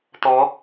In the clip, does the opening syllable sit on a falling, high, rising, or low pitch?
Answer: rising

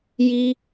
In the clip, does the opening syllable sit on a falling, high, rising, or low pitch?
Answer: high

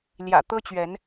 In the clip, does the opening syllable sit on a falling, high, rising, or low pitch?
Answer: low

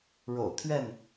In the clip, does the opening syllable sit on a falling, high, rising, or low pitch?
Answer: low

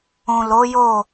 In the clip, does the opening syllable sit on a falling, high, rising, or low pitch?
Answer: low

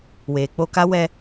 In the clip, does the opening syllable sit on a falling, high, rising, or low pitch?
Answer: low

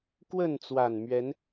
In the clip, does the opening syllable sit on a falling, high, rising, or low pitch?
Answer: falling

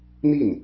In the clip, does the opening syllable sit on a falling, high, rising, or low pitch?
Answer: falling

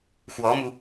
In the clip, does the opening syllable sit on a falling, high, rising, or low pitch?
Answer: rising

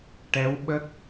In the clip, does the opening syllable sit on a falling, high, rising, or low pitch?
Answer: rising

